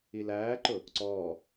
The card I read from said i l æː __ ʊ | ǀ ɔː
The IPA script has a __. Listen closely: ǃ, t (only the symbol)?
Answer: ǃ